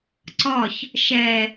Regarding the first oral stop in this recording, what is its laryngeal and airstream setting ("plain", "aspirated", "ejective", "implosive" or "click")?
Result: click